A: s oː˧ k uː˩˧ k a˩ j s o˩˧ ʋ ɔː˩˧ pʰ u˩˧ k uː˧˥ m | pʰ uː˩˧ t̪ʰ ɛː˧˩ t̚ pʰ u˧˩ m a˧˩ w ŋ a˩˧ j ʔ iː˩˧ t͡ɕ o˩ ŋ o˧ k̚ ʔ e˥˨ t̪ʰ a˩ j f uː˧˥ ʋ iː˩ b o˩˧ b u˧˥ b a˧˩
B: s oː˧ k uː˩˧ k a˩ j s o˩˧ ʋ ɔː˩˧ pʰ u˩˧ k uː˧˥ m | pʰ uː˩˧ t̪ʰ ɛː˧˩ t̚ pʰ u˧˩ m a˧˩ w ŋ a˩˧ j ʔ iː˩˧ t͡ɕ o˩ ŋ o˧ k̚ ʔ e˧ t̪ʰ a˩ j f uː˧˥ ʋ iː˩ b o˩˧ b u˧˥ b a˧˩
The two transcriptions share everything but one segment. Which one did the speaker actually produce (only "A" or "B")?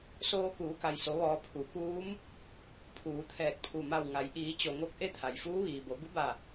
A